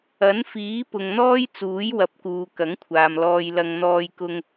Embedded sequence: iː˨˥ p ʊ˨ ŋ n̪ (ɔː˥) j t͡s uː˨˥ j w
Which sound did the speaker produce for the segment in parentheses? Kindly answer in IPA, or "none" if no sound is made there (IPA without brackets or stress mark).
ɔː˥